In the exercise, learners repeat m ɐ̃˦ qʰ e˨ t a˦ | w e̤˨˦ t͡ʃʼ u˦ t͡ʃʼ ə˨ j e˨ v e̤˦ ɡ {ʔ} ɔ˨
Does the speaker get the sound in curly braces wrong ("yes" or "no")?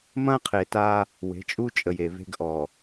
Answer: no